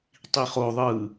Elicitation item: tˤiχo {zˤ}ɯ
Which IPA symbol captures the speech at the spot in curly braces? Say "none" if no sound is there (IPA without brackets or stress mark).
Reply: ðˤ